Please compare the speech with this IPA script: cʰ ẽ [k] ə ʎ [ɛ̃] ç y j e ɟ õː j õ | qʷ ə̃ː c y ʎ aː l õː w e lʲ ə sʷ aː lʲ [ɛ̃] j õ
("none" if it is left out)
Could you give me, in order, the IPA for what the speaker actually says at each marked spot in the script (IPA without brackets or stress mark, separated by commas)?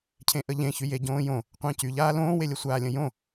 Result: ʔ, ẽ, ə̃